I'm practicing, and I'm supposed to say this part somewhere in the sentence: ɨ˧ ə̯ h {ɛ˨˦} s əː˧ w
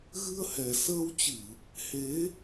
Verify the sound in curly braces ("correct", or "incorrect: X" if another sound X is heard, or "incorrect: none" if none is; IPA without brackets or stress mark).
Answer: incorrect: ɛ˨˩